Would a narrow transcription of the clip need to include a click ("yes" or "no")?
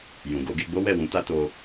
no